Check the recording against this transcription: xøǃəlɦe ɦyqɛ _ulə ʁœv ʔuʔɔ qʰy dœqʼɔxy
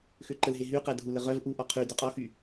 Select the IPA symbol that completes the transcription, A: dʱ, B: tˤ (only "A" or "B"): A